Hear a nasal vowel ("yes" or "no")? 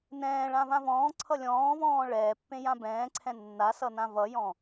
yes